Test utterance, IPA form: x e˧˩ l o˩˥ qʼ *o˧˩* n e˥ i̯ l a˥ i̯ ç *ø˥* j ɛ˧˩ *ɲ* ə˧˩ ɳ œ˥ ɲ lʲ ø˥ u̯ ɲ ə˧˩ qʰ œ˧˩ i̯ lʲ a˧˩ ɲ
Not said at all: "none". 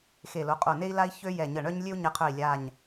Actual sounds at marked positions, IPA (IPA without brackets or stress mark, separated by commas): o˧˩, ø˥, ɲ